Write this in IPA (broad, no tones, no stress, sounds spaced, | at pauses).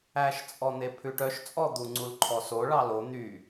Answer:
æ ʃ t͡sʼ ɔ n̪ e pʰ ʉ ʈ œ ʃ t͡sʼ ɔ d̪ u ŋ͡ǀ u l ǃʰ ɔ s o ɭ ɑ l o n̪ y